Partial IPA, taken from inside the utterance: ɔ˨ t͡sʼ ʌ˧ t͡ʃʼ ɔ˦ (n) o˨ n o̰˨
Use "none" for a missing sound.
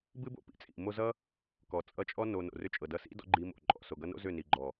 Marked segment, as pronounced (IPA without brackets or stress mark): n